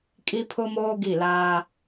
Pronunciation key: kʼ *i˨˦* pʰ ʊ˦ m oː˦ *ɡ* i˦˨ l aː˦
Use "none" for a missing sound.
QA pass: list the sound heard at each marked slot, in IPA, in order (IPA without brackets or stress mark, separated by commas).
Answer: i˦, ɡ